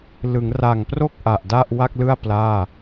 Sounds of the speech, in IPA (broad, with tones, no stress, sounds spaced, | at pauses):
l ɯ˩˦ ŋ r a˨˩ ŋ p r o˥˩ k̚ ʔ a˨˩ ʔ d a˥˩ ʔ w a˥˩ k̚ l ɯ˥˩ a̯ p l aː˥˩